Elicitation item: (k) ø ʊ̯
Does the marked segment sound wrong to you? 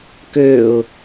no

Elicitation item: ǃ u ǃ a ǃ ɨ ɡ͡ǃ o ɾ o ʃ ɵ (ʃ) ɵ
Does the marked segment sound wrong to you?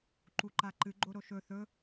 yes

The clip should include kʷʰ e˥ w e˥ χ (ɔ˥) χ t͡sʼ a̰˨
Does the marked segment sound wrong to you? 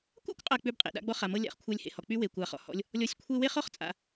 no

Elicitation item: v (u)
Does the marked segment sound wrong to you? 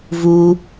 no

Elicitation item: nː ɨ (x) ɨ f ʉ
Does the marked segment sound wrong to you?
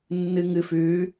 yes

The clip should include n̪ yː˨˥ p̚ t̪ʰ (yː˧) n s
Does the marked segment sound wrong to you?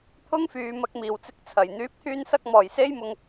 no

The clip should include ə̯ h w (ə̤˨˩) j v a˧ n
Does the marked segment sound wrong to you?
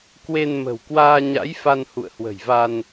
no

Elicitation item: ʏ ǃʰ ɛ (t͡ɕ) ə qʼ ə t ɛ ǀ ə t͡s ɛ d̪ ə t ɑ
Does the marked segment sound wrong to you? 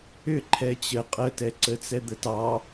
no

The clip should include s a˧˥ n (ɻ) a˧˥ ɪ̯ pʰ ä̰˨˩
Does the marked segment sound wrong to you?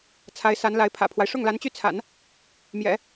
yes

